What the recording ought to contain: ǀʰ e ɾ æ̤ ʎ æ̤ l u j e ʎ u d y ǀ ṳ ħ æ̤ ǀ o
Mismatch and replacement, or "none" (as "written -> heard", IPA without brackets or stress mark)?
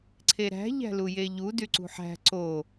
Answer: none